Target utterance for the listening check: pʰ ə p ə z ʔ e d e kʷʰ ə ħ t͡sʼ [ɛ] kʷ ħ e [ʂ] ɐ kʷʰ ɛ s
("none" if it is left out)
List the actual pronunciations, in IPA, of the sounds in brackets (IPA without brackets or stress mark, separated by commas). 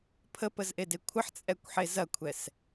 ɛ, z